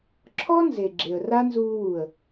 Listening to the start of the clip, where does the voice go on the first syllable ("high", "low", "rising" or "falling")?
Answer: high